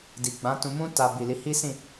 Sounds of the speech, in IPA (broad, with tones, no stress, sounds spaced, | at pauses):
d i˨ ɡ͡b ã˨˦ t ũ˧ m ũ˦ t a˧ b i˨ l i˨˦ h i˦ s ĩ˦˨